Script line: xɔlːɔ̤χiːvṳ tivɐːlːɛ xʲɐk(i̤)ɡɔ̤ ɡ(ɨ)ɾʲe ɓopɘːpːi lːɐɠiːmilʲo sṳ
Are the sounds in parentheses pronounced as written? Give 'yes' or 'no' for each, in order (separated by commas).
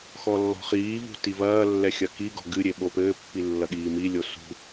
no, yes